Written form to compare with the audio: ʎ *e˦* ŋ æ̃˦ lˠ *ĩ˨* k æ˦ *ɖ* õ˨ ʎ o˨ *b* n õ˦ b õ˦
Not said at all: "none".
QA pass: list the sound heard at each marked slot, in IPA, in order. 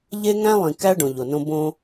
e˦, ĩ˨, ɖ, none

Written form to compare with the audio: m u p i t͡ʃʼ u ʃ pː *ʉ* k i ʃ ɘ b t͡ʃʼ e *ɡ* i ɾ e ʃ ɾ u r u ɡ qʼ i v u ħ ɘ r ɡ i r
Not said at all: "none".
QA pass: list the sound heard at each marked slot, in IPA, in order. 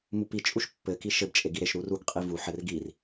ɘ, ɡ

